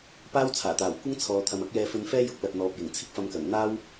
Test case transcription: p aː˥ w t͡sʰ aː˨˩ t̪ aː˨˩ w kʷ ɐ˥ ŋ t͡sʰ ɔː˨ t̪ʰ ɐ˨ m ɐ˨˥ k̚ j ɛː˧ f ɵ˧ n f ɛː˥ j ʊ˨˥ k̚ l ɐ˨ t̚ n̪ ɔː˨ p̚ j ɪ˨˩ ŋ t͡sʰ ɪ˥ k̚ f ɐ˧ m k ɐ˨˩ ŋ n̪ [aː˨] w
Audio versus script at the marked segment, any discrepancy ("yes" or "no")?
yes